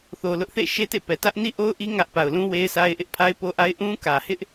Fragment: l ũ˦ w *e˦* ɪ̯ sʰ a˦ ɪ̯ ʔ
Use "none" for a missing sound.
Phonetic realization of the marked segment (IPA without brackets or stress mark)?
e˦